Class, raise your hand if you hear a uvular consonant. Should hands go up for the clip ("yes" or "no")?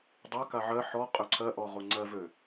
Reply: yes